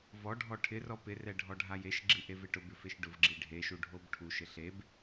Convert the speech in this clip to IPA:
v ɔ ɖʱ ɔ ʈʰ ɪ r ɔ p ɪ r ɛ ɖʱ ɔ ɖʱ a j e ʃ ɡ͡ǁ i ʔ e v ɪ ʈ ʊ b ɪ f e ʃ ɖ ʊ v ɡ͡ǁ i ɖʱ e ʃ u ɖʱ o b ʈʰ u ʃ ɪ ɬ e b

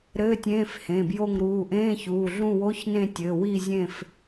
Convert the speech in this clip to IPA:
ɾ ɘː˧˥˧ tʲ ẽː˧˥˧ f h ẽ˩˧˩ b j o˦˨ ŋ ɾ uː˩˧˩ ʔ ẽː˧˥˧ ç uː˩˧˩ ɮ ũ˦˨ w o˧˥˧ ç n ẽ˦˨ tʲ ɘː˩˧˩ w i˦˨ zʲ ẽ˦˨ f

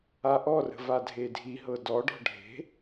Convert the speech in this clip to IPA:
a ʔ ɔ r ə̤ v a dʱ e dʱ i ɦ ɤ d ɔ ɖ ɔ̤ ɖʱ e̤

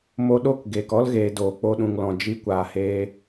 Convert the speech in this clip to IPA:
m o˧ ɗ o˦˨ k ɡ eː˨ k ɔ˦ l ɣ eː˨ d oː˨ k͡p o˧ ɗ ũ˨ ŋ l ɔ̃˨ d͡ʒ i˧ kʷ aː˨ h eː˧

